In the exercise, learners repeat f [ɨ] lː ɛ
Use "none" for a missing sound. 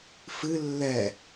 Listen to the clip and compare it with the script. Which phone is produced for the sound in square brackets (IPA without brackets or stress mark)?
ɨ